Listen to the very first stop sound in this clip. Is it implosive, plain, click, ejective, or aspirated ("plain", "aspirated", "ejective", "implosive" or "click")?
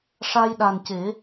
implosive